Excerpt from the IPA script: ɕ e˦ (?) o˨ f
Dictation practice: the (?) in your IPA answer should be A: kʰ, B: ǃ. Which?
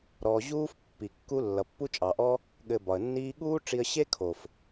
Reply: A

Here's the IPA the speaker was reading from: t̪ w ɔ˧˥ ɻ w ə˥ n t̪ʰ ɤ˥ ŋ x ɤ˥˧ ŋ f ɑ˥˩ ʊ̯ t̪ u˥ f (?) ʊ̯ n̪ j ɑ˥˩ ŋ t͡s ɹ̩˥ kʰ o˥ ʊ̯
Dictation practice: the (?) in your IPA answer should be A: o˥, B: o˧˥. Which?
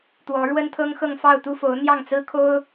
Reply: B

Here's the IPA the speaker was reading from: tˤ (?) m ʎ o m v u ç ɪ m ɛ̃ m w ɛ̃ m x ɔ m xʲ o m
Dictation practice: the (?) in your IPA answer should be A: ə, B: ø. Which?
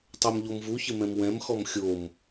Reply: B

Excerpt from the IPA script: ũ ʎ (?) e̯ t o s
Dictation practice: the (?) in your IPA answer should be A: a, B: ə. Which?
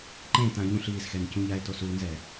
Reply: A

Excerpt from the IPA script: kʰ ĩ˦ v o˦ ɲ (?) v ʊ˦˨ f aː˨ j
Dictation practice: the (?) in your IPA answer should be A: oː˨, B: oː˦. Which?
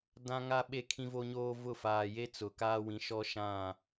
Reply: B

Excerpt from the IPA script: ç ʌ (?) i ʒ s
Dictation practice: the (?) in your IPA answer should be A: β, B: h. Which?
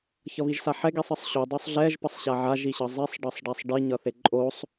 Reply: A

